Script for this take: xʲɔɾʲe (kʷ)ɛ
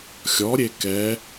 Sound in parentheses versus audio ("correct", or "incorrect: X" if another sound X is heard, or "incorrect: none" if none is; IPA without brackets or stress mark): incorrect: k